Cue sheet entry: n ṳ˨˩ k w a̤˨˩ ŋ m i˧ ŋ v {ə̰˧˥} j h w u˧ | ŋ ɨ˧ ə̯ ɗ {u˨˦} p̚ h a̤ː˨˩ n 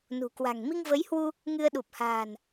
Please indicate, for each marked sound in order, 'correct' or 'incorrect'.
incorrect, incorrect

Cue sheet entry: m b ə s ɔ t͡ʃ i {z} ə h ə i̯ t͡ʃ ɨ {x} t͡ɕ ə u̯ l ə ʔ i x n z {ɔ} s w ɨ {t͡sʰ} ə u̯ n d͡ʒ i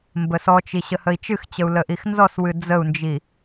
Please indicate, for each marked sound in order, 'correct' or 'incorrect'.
incorrect, correct, correct, incorrect

